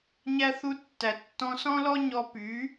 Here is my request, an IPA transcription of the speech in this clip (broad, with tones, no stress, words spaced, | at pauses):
ɲæ˧ θu˧tːæ˩ tːɔ̃˧ sɔ̃˥lɔ˥ ɲɔ˧ py˩˥